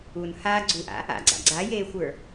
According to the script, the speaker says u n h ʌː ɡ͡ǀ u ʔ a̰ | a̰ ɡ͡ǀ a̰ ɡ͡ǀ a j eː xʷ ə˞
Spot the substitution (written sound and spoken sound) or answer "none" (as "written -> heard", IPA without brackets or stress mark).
ʌː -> aː